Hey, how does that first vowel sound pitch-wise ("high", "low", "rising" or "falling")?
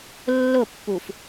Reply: falling